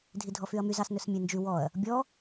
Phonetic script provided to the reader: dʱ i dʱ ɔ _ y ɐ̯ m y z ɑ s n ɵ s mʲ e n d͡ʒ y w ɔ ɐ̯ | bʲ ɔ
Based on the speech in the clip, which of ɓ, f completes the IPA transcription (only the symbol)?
f